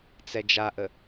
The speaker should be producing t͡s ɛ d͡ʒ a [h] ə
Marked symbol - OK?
no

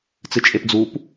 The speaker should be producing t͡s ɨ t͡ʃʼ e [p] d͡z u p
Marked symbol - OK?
yes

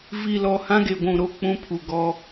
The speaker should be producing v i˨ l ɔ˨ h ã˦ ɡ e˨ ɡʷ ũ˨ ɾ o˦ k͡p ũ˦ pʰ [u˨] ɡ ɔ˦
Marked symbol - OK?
yes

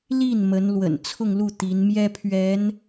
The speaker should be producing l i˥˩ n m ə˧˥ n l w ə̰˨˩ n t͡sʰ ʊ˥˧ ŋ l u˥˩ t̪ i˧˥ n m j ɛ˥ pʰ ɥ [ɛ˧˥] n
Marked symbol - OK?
yes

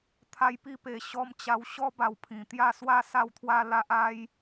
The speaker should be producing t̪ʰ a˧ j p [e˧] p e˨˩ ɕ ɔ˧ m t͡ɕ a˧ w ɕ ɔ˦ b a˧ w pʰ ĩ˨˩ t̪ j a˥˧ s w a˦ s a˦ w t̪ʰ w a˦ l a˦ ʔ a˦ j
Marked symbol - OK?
no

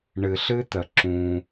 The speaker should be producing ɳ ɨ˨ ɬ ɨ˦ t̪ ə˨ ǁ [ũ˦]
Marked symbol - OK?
yes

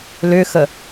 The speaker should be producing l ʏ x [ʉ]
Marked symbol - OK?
no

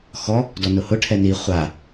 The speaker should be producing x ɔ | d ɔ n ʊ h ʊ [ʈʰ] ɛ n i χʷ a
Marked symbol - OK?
yes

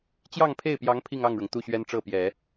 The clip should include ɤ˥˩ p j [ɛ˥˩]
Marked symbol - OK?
no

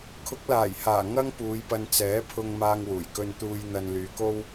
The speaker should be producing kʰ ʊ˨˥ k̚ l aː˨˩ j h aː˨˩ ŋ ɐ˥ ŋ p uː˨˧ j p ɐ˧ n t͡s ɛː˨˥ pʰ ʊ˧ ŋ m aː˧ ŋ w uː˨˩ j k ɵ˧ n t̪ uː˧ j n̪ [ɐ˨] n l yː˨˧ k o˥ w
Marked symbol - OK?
no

